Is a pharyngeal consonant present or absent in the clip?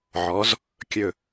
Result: present